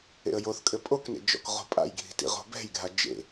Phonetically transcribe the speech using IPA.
ḛ ə̯ j o θ kʼ ɘ pʼ o k n ḛ d͡ʒ ɔ̰ k ʁ o̤ pʼ a̰ j ɡʱ i̤ t ḭ ʁ o̤ b ɛ̤ j ɡʱ a d͡ʒ ḛ

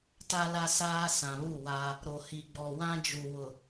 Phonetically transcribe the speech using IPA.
t a˦ l a˦ s aː˦ s ã˨ β u˦˨ w a˦ | ɾ o˨ h i˨ ɡ͡b ɔ˨ w ã˦ d͡ʒ u˨ w ʊ˨

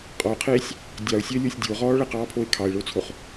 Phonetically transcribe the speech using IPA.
qʼ ɔ ʊ̯ qʰ eː sʲ | dʲ ɑ ʊ̯ sʲ əː lʲ o sʲ dʲ o ʁ ɔː ɭ ə q ɑː pʰ o ɪ̯ kʰ ɑ ɪ̯ ɭ o t͡sʰ o χ

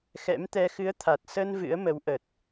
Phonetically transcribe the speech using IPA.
x ɛ̰˧˥ m t̪ ɛ˧ x ɨ˨˦ ə̯ t̪ʰ a˨˩ t̚ s ə˧ n v ɨ̰˧˥ ə̯ m ə˨˦ w ʔ ə˨˩ t̚

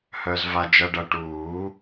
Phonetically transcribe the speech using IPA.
h œ˧ z v a˧ d͡ʒ ɐ˧ ɖ ɐ˧ ʈ uː˨˩˦

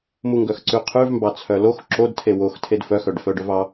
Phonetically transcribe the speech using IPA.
m u ŋ ɡ œ x ǀ ʉ qʰ ʉ v m b ɑ t͡sʰ œ l o x ǁ o d tʰ e w o x tʰ e d f œ x œ ɖ f œ ɖ œ v ɑ

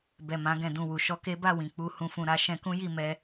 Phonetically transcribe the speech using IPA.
b ɛ˨ m ã˨˦ ɡ ɛ̃˧ d ũ˧ w u˨ ʃ ɔ˧ k e˦ b a˦˨ w ĩ˨ k͡p u˧ h ũ˧ f ũ˧ ɾ a˦ ʃ ɛ̃˧ k ũ˦ j i˦˨ m ɛ˧

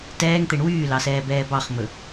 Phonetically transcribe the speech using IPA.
t ɛː ŋ t̪ e ɳ w yː l ɑ s ɛː b ɛː b ɑ χ m ɵ

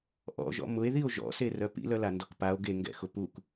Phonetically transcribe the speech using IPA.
ʔ ɔ̰ ʒ ɔ̰ m ʊ e̯ ð i o̯ ʒ ɔ̰ s e r œ p ḭ l œ l a n d ɔ k p a o̯ ɡ e ŋ ɡ ɛ̰ x ʊ p u k

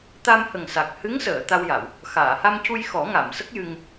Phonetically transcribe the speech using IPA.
t̪ a˧ m h ə˨˩ ŋ s a˨˩ k̚ h ɨ˧˥ ŋ s əː˨˩˨ t̪ a˧ w j a˨˩˨ w | x aː˨˩˨ h a˧ m c u˧ j x ɔ˨˩˦ ŋ a˨˩˨ m s ə˦˥ k̚ j ɨ˧ ŋ

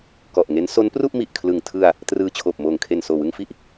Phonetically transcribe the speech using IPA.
k ɔ˨˩ ʔ ŋ e˦˥ n s o˦˥ n p r u˥˩ ʔ m i˨˩ ʔ kʰ l ɯ˨˩ ŋ tʰ ɯ˧ a̯ | t r ɯː˧ t͡ɕʰ oː˨˩ p̚ m oː˨˩ ŋ kʰ e˨˩ n s oː˨˩ w ɯ˧ ŋ f i˦˥ ʔ

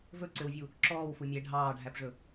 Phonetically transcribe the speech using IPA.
v ɵ ǀ ø w vʲ u | ǁ ɔː w f u mʲ ɛ ɖʱ ɑː ɖʱ æ p ʐ ɵ

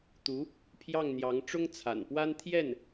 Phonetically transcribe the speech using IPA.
t̪ u˧˥ | pʰ j ɑ˥˩ ŋ n̪ j ɑ˧˥ ŋ ʈ͡ʂ ʊ˥ ŋ t͡sʰ a̰˨˩ n p w a˥ n t̪ʰ j ɛ˥˩ n

